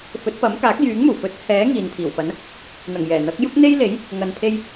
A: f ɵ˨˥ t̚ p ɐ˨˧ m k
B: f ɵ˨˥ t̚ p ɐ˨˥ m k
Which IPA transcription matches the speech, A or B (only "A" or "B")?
B